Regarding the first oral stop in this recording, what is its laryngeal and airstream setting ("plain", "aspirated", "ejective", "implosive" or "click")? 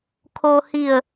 aspirated